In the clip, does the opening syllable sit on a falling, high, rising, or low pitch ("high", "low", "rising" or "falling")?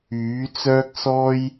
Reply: rising